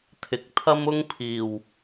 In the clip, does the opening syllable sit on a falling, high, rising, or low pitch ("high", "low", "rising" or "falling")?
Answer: low